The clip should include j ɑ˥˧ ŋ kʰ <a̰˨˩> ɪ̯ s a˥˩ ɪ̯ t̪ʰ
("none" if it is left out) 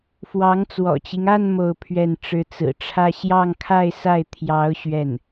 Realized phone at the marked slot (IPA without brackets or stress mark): a˥˧